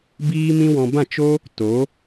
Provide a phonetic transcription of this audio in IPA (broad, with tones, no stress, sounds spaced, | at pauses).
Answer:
b iː˦ m ĩ˦ w ɔ̃˧ b ã˦˨ t͡ʃ o˦ | t o˨˦